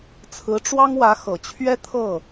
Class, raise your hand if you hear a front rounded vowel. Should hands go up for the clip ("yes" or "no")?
no